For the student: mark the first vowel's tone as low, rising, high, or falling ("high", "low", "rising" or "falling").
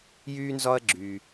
high